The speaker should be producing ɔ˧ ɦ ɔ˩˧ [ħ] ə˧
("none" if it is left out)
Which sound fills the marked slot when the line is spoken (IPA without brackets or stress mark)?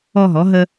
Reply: ɦ